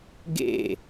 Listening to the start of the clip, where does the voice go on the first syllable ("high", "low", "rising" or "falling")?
falling